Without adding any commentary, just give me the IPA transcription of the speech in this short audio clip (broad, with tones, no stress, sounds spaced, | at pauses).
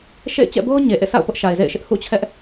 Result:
ʃ ḛ˦˨ ɪ̯ t͡ɕ ɛ̰˦˨ b o˦ ʊ̯ ɲ e˨ ʔ ḛ˦˨ s a̰˦˨ ʊ̯ p ʊ˦ ʔ ʃ a˨ ɪ̯ z ḛ˦˨ ɪ̯ ʃ ɪ˦ ʔ h ṵ˦˨ t͡ɕʰ ɛ˦ ʔ